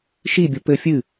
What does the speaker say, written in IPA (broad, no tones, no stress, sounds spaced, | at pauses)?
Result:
ʃ i bʲ o p ɘ fʲ ɨ